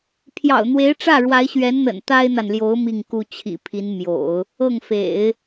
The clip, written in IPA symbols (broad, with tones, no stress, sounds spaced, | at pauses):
pʰ j ɑ̰˨˩ ʊ̯ n̪ w e˧˥ ɪ̯ ʈ͡ʂ ä˥˩ ɻ w a˧˥ ɪ̯ ɕ ɥ ɛ˧˥ n n̪ ə̰˨˩ n t̪ a˥ ɪ̯ n̪ a˨ n l j o˧˥ ʊ̯ m i˥˩ ŋ k u˥ t͡ɕʰ ḭ˨˩ pʰ i˧˥ n m j o̰˨˩˦ ʊ̯ | ɤ˥˩ ŋ f ḛ˨˩˦ ɪ̯